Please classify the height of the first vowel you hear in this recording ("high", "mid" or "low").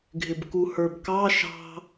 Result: high